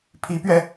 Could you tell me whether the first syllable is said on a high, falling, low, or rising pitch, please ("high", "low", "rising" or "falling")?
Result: rising